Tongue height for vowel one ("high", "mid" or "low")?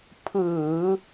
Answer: high